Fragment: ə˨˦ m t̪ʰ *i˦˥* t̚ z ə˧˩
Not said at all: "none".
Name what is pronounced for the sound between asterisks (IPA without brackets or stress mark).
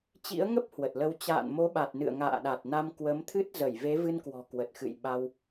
ɨ˦˥